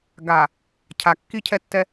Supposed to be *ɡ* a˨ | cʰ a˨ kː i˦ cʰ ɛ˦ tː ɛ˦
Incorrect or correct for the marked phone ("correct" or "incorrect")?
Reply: correct